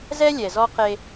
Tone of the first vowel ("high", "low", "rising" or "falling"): high